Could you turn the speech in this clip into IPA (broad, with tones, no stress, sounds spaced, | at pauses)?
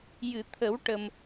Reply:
j ɨ˨˩˨ t̪ʰ ə˨˩˦ w ʈ ə˨˩ m